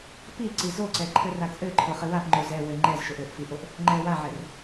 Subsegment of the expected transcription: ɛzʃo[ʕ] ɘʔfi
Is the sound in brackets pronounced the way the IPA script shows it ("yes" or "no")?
no